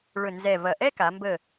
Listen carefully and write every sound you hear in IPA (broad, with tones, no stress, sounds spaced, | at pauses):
ɭ ɵ˧˩ n z ɛ˧˩ v ɐ˧˩ ʔ ɛ˥ k a˩˧ m b ə˧˩